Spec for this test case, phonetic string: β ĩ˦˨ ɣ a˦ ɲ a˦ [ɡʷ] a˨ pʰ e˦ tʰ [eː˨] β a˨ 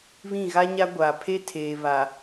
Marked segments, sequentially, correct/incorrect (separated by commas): correct, correct